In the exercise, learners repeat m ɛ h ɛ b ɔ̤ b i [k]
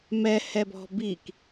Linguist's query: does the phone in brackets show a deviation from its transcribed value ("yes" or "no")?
no